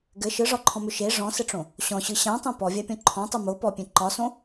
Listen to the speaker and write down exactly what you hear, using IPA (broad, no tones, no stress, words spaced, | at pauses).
ɡɘ ʃɯʐɒǃʰɔ̃mʏ ʃe ʐɔ̃sɘʈ͡ʂõ | ɕɔ̃ɕɯ ɕãtˤõ pɔvʲapʲɔ̃ ǃʰɔ̃tˤɯ mo pɔpʲẽ ǃɒsõ